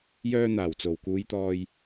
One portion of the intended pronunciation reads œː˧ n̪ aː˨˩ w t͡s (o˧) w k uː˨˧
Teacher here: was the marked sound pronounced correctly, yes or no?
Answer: no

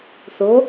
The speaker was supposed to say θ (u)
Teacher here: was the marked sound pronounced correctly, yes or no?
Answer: no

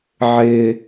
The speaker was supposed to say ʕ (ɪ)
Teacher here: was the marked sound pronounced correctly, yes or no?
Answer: yes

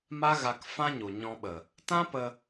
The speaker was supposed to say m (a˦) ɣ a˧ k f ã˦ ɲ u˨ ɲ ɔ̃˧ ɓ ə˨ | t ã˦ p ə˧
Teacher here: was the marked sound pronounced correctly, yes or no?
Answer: yes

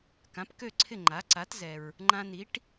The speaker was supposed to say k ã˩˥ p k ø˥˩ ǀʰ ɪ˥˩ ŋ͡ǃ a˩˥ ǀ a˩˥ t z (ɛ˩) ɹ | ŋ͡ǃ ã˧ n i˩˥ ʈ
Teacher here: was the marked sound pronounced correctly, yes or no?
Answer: yes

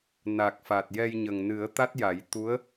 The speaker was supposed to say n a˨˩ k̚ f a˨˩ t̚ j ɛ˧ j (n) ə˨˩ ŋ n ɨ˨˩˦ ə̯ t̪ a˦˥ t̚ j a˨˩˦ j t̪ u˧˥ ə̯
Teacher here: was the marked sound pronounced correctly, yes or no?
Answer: no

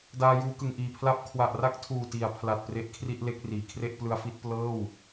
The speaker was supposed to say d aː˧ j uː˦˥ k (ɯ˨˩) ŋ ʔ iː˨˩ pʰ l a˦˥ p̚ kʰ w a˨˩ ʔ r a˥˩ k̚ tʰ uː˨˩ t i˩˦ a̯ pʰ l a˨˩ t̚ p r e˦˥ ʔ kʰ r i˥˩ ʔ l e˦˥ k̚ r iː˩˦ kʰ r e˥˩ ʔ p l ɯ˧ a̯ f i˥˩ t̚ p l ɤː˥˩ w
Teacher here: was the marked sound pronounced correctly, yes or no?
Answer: yes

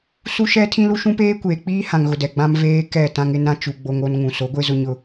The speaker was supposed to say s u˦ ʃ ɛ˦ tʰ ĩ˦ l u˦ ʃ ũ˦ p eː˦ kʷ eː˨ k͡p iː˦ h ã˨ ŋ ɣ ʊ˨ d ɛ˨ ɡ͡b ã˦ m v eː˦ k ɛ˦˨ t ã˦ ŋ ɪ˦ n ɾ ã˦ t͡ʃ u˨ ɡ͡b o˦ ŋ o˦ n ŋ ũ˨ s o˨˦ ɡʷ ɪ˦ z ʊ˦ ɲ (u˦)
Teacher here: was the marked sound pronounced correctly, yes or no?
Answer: no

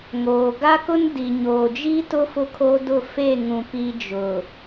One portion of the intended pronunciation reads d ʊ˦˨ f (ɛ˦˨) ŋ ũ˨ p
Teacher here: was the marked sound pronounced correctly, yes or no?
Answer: no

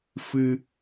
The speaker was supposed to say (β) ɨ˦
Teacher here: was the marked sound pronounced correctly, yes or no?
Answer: no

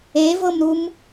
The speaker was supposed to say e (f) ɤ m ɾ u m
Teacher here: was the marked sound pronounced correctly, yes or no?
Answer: no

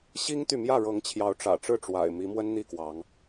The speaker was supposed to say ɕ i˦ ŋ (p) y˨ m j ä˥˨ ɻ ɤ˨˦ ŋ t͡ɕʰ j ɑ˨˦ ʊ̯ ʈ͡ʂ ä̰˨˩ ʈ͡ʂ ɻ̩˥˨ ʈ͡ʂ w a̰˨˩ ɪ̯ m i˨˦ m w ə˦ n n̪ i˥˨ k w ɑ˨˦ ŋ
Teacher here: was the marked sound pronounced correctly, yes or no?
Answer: no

